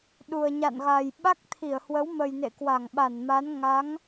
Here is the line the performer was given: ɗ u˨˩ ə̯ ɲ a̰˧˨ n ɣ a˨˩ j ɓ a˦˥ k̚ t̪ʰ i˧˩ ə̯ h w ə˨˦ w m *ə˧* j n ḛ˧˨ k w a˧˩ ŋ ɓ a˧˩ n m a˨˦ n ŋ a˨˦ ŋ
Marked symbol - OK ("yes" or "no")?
no